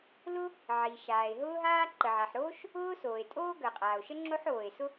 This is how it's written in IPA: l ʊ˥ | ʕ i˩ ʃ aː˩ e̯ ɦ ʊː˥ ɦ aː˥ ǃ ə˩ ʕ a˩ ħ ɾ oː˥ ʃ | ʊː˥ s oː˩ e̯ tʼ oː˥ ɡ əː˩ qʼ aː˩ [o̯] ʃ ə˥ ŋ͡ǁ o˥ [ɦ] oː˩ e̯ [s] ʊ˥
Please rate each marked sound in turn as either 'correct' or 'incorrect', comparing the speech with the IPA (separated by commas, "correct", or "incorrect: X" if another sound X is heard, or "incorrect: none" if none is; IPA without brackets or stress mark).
correct, incorrect: ħ, correct